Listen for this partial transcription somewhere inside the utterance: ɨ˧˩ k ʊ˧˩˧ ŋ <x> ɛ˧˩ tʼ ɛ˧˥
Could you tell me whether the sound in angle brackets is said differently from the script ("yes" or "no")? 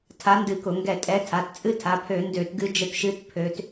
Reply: yes